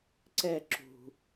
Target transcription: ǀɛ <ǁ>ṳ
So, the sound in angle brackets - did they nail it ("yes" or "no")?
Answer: yes